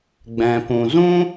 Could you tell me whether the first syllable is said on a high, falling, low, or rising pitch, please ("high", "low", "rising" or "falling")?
low